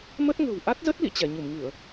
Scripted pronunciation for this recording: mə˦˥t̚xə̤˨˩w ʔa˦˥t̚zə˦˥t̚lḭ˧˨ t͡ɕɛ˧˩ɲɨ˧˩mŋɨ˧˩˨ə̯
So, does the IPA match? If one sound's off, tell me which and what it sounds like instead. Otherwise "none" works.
x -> ŋ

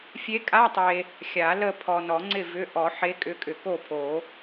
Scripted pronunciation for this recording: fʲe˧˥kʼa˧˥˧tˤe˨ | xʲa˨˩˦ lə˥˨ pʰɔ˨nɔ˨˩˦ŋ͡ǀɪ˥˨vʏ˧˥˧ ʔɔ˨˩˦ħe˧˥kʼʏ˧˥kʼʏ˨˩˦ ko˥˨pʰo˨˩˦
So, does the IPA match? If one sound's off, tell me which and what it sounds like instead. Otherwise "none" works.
none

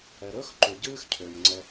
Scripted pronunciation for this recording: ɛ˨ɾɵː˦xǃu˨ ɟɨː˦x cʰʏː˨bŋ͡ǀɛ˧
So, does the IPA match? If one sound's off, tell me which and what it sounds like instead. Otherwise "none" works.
b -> m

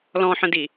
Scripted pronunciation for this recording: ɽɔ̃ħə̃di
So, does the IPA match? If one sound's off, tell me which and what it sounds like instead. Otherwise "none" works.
ɽ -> l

